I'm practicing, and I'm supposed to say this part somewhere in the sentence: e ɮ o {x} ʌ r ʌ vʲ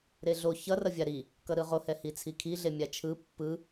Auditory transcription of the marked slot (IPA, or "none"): ç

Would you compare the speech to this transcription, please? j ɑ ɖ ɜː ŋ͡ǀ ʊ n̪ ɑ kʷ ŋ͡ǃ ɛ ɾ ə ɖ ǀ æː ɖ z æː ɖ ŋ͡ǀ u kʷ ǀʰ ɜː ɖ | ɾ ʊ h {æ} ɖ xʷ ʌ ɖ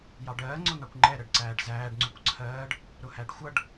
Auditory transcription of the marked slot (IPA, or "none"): æ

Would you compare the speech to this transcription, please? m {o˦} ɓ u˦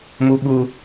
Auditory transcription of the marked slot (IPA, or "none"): u˦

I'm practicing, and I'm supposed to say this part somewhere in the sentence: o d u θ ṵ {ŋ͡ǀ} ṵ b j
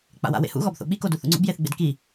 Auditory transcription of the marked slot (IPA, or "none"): ŋ͡ǀ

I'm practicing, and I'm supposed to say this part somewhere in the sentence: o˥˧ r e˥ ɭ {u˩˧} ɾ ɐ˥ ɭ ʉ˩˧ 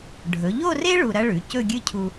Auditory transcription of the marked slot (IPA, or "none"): u˧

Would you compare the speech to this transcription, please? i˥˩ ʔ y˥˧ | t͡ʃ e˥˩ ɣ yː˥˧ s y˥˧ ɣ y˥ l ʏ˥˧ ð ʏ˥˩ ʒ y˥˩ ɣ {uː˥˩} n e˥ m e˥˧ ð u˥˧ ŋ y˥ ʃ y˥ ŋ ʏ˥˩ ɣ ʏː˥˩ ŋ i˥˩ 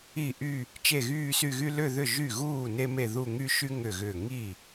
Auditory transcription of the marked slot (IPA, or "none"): uː˥˩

